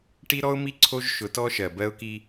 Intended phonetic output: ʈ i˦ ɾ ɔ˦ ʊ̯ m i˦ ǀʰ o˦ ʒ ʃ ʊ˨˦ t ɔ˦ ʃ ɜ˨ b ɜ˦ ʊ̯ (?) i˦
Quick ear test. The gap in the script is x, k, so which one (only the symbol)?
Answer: k